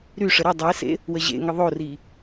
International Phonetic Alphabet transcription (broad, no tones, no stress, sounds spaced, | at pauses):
ɾ y ʂ ə ɾ ə dˤ e s ḛ | w ə ʑ ḛ ŋ ə ðˤ o r i